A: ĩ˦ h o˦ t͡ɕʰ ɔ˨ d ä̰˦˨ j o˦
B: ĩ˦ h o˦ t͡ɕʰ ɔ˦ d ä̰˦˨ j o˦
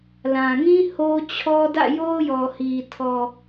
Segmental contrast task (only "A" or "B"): B